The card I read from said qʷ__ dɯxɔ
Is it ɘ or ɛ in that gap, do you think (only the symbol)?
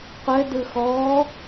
ɘ